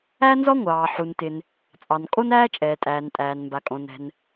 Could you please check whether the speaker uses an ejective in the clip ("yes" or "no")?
yes